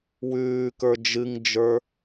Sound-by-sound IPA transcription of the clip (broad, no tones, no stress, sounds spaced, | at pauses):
w ʉː k ə˞ d͡ʒ ɨ ŋ d͡ʒ ə˞